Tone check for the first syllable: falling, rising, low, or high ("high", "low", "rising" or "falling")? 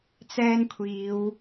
high